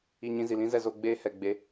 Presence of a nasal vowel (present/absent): present